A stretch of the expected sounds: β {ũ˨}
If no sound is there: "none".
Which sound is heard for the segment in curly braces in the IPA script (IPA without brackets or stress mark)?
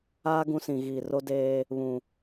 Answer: ũ˨